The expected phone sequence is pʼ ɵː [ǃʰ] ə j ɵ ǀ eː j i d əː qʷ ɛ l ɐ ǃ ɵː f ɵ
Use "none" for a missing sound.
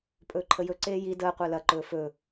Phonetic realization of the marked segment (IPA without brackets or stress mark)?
ǃʰ